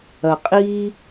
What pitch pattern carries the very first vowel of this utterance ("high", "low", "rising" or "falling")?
low